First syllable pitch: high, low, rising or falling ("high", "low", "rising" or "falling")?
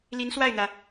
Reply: rising